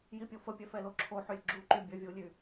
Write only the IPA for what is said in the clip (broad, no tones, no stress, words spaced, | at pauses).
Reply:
jipʲofəpʲɛ fɛloǁʰoħølʲ ɡ͡ǁuǃy bʲœvʲulʲy